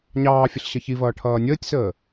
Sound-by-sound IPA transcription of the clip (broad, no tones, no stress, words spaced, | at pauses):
ɲɑːfʲəɬ ɕʌçivʌː ʈʰʌːnʲəːtʲsəː